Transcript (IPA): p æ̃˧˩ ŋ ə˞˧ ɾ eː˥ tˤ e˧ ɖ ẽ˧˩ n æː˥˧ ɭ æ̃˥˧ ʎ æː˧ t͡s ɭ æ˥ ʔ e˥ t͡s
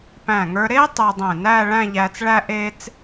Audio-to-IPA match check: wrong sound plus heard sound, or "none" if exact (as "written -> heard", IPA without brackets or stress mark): ɖ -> dˤ